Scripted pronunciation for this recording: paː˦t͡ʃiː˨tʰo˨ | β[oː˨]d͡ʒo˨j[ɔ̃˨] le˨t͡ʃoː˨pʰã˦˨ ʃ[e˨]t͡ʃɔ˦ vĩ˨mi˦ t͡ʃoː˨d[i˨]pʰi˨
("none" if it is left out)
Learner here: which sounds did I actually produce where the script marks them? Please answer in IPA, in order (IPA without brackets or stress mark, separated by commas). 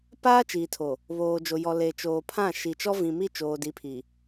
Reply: oː˨, ɔ˨, i˨, i˨˦